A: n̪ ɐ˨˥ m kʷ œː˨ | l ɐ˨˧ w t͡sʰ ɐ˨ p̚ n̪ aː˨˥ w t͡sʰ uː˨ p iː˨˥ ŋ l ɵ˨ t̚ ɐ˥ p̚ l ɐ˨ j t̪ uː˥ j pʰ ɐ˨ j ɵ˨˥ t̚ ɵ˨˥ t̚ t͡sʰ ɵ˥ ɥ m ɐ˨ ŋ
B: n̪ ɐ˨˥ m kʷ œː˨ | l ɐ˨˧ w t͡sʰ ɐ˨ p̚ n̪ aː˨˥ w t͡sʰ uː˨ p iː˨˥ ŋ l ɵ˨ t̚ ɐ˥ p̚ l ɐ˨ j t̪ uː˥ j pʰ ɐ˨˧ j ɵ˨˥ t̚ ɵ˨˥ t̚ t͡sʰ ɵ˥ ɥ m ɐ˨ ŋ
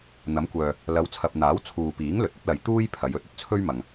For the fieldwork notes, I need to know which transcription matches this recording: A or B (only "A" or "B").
B